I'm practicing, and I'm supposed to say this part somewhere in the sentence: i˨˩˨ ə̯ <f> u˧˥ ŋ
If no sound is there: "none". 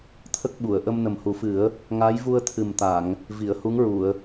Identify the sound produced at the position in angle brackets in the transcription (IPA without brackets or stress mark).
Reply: h